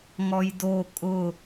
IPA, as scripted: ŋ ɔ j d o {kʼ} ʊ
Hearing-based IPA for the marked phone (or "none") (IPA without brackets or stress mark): kʼ